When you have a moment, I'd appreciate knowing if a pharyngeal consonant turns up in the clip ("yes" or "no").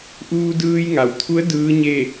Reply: no